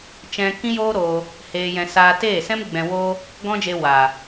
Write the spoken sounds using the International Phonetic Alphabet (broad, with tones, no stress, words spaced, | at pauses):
t͡ʃɛ̃˧ kĩ˦joː˦ ɾoː˧ | heː˧jɛ̃˧ saː˧teː˦˨ sɛ̃˦m ɡ͡bɛ̃˧woː˦ | ɡɔ̃˦d͡ʒe˧waː˨